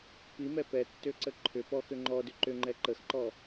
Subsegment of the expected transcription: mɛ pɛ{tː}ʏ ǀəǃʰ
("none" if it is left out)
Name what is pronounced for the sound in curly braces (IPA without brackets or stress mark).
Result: tː